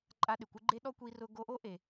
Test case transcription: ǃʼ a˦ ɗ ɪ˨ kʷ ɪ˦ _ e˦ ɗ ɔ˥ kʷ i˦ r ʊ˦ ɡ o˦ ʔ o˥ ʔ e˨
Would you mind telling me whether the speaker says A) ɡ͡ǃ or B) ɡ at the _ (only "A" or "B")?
A